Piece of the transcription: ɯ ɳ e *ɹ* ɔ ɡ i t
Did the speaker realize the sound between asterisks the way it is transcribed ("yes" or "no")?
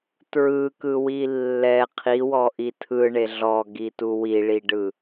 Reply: no